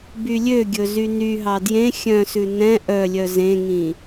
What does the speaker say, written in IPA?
b y lʲ ø ɡʲ ɵ z y n y ɦ ɑ d j ẽ xʲ œ̃ s ʉ n ɛ̃ ʔ œ lʲ œ z ẽ ŋ ĩ

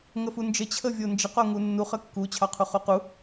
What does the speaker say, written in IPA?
ŋ ə f u n d͡ʒ ə t͡ɕʰ ə vʲ o n d͡ʒ ə q o ŋ u nː u χ ə kː u t͡ɕʰ ɑ qʰ u χ u q u

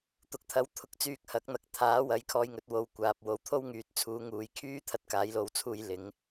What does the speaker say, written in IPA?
t̪ ʊ˨ k̚ t̪ʰ ɐ˨˥ w t̪ʰ ʊ˨˥ k̚ t͡s yː˧ k̚ h ɐ˨˥ k̚ n̪ ɐ˨ k̚ t̪ʰ aː˨˥ w ɐ˨˥ j kʰ ɔː˧ j ŋ ɵ˨˥ t̚ w o˨˧ w kʷ aː˨ p̚ w o˨˧ w t̪ʰ o˥ w ŋ yː˨ t̚ t͡sʰ uː˨˧ ŋ uː˨ j kʰ yː˥ t̪ʰ ɐ˥ t̚ k aː˨˥ j l o˧ w t͡sʰ uː˧ j l ɪ˨˥ ŋ

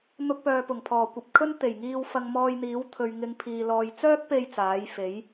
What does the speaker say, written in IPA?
n̪ ʊ˧ k̚ p œː˨ p ʊ˨˩ ŋ pʰ ɔː˨˩ kʷ ɐ˨ p̚ kʰ ɵ˥ n t̪ e˨˩ j ŋ iː˧ w f ɐ˧ ŋ m ɔː˧ j n̪ iː˨˥ w t̪ʰ ɵ˨ ɥ ŋ ɪ˨˧ ŋ pʰ iː˨ l ɔː˨ j t͡s œː˥ k̚ p e˧ j t͡s aː˨˥ j f e˨˥ j

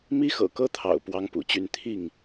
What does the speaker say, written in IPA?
m i˦ x ɤ̰˨˩ k ɤ˦ t̪ʰ ɑ̰˨˩ ʊ̯ p w ɑ˦ ŋ p ṵ˨˩ t͡ɕ y˥˨ n t̪ʰ i˥˨ ŋ

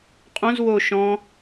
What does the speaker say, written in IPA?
qʼ õ z w o ʃ ɔ̃

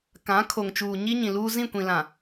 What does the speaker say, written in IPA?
k ã˨˦ kʰ o˨ ŋ t͡ʃ uː˨ ɲ i˦ ɲ ĩ˨ l uː˦ z ĩ˦˨ kʷ ĩ˨ l ã˨

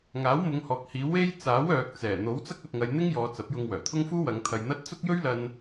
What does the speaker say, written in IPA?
ŋ aː˨˥ w m ʊ˨˧ ŋ h ɔː˨ k̚ h iː˨˧ w e˧ j t͡s aː˨˥ w œː˨ k̚ t͡s ɛː˨˩ n̪ o˨˥ w t͡s ɐ˥ k̚ ɐ˧ t̚ ŋ ɐ˧ j n̪ ɪ˥ ŋ j ɔː˨˧ t͡s ɐ˨˥ p̚ j ʊ˧ ŋ w œː˨˩ t̪ʰ ʊ˥ ŋ f uː˥ w ɐ˨˧ ŋ t̪ʰ ɐ˧ j n̪ ɐ˥ t̚ t͡s ʊ˥ k̚ j ɵ˥ ɥ l ɐ˧ n

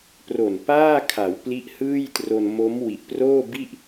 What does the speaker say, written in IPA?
p r o˨˩ n p aː˥˩ kʰ a˩˦ w p l i˦˥ ʔ h ɯː˥˩ j t r o˧ n m o˦˥ m w i˨˩ ʔ p r oː˥˩ b i˥˩ ʔ

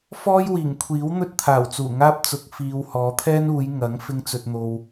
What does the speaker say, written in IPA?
f ɔː˥ j w iː˨˩ ŋ kʷʰ iː˨˥ w n̪ ɵ˥ t̚ t̪ʰ aː˨˩ w t͡s uː˨˩ ŋ aː˥ p̚ t͡s ʊ˨ k̚ f iː˨ w h ɔː˨˧ t̪ʰ ɛː˥ n uː˨˧ j ŋ ɐ˨˥ ŋ f ɪ˧ ŋ t͡s ɵ˨ t̚ n̪ o˨ w

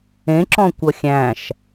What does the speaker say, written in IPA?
ẽ ǁ ɔ̃ kʷ ʌ xʲ æ̃ ʃ

